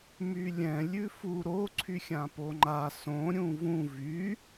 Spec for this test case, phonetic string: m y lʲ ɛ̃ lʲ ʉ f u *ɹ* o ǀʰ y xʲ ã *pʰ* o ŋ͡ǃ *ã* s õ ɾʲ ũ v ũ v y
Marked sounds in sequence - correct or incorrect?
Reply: incorrect, incorrect, incorrect

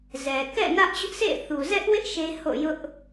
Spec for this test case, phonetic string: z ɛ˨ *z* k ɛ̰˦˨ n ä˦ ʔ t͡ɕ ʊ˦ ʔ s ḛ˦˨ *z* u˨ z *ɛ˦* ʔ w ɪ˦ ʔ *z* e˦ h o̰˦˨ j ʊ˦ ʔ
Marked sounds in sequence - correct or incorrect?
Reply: incorrect, incorrect, correct, incorrect

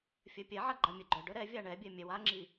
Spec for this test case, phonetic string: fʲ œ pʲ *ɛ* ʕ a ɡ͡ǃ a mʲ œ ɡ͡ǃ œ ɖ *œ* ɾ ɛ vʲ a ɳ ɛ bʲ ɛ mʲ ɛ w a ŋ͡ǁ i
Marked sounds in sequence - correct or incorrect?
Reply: correct, correct

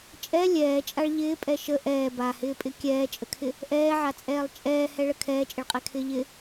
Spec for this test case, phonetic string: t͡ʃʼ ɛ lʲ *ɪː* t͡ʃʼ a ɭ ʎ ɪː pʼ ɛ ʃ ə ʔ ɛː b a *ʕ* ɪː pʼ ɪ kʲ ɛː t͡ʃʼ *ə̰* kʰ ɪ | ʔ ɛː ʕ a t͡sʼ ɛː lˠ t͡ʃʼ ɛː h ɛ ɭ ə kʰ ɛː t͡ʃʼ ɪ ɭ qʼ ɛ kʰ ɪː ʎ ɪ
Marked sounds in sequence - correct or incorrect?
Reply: incorrect, incorrect, incorrect

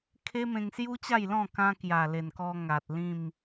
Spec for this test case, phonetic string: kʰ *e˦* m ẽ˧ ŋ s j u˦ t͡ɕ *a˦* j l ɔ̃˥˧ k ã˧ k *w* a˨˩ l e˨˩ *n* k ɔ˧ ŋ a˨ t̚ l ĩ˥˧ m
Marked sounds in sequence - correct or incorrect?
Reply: correct, incorrect, incorrect, correct

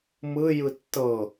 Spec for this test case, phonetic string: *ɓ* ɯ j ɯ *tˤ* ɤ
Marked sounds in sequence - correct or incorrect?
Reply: incorrect, incorrect

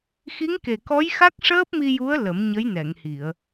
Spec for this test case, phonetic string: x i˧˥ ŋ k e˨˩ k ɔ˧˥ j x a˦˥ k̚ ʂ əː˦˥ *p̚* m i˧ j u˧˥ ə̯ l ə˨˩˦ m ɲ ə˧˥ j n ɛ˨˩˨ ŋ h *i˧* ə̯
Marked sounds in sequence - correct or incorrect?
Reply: correct, incorrect

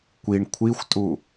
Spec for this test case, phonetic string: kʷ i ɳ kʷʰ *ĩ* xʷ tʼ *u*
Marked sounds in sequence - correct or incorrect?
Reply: incorrect, correct

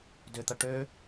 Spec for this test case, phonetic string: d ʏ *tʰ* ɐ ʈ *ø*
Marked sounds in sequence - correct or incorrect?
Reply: incorrect, correct

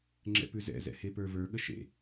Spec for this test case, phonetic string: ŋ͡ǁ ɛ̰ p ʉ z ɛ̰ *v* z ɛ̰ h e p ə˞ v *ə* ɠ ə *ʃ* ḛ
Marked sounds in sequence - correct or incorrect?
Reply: incorrect, incorrect, correct

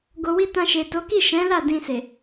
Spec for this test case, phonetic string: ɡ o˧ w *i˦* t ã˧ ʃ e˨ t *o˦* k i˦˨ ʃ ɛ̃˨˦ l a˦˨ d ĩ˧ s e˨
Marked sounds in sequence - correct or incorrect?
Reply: correct, incorrect

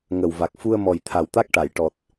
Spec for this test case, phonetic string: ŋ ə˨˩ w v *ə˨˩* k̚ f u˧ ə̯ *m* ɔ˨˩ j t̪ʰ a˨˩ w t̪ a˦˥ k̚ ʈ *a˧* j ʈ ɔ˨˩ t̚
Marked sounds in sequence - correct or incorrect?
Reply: incorrect, correct, incorrect

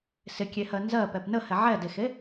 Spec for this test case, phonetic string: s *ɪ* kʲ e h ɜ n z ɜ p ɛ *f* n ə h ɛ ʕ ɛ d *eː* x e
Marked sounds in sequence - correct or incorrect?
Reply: correct, incorrect, incorrect

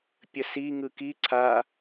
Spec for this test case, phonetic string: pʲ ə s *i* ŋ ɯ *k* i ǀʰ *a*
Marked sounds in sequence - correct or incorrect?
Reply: correct, correct, correct

